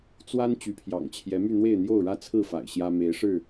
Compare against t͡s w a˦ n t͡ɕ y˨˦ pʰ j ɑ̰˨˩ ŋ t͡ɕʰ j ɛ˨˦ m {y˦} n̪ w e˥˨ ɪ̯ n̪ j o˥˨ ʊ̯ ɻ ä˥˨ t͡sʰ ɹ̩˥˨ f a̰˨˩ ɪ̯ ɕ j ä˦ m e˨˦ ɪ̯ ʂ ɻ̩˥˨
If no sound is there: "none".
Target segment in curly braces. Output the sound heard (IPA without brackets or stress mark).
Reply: y˥˨